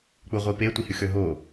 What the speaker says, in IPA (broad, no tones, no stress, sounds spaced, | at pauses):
k͡p u ʁʷ i p e tʷ i h y x ø ɦ o